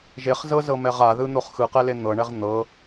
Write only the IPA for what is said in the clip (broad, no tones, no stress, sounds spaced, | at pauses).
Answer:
ʒ e χ z ɤ z ɤ m ɛ ʁ a ð ɯ n̪ o χ x ɯ q ɛ l e n̪ ɤ ɳ ɛ ʁ n̪ ɤ